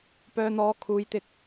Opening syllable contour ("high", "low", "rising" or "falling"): low